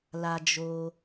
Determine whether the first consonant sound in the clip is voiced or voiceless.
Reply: voiced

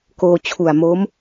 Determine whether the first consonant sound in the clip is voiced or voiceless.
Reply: voiceless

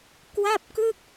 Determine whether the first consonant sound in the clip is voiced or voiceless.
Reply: voiceless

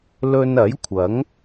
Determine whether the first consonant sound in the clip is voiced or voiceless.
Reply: voiced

